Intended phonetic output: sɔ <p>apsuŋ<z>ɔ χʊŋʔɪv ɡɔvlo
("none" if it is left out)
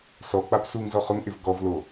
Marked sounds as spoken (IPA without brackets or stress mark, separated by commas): k͡p, z